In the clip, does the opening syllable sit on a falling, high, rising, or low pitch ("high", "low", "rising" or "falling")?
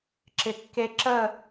low